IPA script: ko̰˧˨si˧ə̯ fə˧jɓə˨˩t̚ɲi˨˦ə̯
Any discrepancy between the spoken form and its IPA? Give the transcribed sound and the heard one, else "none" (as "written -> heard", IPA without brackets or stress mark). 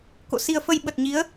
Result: none